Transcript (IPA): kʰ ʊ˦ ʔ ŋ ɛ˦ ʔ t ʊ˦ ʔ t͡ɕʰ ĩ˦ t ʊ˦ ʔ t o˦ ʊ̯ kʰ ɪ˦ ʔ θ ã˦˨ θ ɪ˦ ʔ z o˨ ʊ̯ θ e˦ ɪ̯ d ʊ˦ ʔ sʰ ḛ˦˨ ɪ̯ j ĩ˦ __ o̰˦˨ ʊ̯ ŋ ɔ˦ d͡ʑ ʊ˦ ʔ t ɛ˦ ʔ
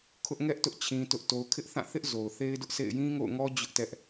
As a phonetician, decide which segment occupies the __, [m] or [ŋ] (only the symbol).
ŋ